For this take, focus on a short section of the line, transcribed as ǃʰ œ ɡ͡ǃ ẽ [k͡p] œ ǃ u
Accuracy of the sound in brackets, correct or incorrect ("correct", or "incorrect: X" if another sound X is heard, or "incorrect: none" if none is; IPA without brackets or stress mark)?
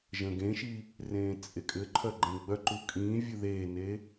incorrect: ɡ͡b